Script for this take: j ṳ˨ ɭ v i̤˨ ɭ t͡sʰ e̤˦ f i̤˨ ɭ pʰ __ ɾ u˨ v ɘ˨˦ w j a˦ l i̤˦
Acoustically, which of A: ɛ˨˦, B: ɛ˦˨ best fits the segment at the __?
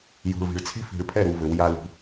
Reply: B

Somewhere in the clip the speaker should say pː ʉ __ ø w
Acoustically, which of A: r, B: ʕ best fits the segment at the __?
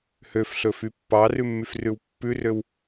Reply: A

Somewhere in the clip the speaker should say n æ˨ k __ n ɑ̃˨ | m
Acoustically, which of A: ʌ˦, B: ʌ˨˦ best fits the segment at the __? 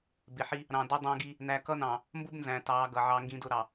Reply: A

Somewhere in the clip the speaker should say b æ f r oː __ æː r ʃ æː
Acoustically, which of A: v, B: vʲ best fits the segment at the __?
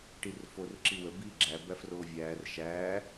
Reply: B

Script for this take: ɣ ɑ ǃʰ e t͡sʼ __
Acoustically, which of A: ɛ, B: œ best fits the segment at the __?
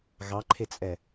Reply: A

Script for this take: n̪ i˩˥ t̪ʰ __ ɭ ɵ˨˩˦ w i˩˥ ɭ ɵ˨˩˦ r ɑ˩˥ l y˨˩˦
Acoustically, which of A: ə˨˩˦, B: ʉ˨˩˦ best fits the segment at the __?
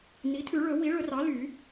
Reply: B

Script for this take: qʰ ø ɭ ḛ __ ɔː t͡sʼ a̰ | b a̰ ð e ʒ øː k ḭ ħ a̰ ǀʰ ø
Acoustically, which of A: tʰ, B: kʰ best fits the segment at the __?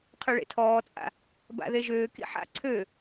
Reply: A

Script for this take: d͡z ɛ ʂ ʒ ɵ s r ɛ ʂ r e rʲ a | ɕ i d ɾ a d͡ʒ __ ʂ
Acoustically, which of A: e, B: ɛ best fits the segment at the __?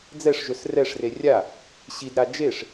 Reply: A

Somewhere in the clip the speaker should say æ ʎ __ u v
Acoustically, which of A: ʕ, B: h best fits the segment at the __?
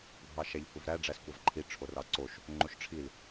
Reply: B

